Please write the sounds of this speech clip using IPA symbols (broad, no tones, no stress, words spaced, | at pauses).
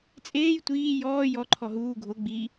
t͡sʼeːj tʷiː jɔː jɔǃʰɔ ɦuː ɡʱo ɡ͡bi